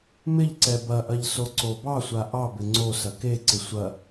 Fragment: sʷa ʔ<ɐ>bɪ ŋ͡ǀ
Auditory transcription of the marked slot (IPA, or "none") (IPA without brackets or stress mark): ɑ